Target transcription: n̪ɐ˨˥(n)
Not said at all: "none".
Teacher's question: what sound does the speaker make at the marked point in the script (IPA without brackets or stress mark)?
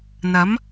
m